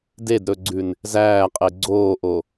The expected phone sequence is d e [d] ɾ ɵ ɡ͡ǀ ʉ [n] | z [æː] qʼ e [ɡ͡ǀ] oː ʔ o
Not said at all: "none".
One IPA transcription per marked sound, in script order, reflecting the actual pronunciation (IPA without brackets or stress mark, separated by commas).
d, n, æː, ɡ͡ǀ